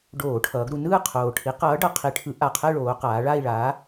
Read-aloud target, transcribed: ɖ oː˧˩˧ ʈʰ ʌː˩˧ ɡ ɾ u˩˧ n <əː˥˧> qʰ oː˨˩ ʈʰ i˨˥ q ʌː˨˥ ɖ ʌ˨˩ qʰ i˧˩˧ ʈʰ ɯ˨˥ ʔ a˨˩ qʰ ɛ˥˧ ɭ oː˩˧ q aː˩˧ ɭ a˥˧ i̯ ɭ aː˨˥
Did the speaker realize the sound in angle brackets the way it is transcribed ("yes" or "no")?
no